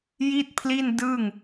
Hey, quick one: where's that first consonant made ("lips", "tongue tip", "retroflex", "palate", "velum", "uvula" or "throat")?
palate